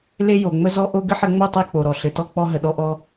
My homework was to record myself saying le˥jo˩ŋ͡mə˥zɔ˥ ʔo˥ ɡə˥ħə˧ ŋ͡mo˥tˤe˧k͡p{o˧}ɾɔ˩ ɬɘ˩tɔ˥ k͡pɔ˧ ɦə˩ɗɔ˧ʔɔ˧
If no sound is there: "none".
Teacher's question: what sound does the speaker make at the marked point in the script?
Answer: o˩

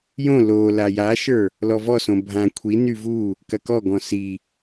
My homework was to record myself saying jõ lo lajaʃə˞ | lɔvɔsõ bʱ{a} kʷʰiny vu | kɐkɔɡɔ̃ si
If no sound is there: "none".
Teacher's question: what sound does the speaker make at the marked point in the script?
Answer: ã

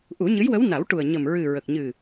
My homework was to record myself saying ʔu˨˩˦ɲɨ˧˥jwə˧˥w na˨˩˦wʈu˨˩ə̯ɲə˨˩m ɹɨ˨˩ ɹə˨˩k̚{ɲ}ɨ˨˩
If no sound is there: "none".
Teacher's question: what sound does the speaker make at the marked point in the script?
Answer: ɲ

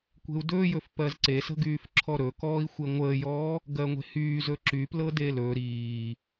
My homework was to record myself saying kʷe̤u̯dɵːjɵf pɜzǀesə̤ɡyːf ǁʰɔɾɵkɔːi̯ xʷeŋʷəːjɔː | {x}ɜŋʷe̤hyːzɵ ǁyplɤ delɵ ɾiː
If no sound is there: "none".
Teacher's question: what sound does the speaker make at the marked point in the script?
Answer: ɡ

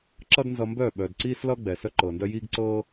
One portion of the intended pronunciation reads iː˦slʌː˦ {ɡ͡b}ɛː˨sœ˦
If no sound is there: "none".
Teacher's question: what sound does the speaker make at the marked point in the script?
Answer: ɡ͡b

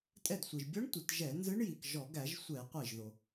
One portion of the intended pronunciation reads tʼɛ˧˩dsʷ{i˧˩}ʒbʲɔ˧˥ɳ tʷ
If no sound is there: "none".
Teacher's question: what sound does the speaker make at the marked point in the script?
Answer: i˩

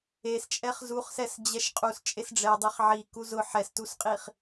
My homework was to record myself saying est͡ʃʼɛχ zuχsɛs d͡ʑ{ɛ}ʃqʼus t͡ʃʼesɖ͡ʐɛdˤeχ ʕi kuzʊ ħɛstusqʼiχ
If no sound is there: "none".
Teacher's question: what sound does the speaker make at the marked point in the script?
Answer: ɛ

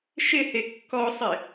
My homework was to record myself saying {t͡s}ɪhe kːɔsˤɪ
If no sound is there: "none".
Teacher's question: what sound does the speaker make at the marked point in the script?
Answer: ʃ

